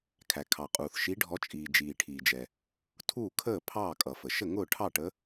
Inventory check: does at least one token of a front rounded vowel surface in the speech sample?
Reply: no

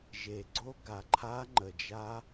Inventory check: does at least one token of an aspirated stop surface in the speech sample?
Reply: yes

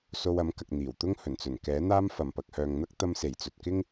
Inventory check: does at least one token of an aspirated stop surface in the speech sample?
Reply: no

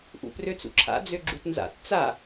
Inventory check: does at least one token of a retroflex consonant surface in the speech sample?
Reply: no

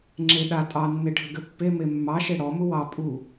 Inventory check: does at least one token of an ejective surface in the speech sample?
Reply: yes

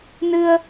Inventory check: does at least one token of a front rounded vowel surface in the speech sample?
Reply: no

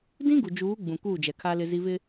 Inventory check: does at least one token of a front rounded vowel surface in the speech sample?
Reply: no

